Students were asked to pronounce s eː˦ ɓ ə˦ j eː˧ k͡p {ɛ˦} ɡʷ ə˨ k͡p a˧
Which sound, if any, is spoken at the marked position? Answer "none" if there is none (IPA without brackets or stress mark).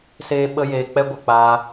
ɛ˦